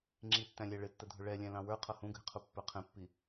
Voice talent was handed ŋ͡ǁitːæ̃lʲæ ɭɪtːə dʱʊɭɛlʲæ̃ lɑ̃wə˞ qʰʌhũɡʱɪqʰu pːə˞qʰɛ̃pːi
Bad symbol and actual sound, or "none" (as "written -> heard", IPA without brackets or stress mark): none